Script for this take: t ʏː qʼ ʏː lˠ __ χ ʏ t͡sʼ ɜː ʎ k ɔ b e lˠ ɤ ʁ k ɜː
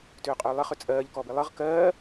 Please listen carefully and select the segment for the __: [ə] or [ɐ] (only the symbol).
ə